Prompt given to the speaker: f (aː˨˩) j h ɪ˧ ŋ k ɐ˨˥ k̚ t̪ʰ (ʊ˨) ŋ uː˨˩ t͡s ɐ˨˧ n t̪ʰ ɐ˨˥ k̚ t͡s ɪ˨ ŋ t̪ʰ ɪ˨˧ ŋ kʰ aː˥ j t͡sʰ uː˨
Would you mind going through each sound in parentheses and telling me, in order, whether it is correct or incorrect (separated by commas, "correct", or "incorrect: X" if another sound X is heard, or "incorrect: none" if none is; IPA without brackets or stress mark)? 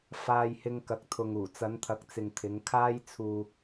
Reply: incorrect: aː˧, correct